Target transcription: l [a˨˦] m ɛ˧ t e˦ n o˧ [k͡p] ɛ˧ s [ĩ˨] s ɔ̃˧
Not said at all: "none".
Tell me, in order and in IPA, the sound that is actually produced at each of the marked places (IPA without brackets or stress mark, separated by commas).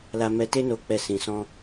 a˧, k͡p, ĩ˨